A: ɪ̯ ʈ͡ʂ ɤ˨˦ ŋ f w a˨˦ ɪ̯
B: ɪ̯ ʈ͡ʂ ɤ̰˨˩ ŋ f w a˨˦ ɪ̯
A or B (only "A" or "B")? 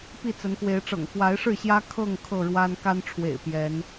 B